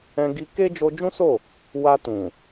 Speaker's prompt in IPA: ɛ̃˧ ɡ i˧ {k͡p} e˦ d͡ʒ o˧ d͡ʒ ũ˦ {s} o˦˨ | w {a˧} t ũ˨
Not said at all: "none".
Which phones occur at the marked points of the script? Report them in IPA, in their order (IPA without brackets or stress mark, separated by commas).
k, s, a˧